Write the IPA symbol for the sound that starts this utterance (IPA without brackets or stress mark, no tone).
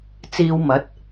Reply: t͡s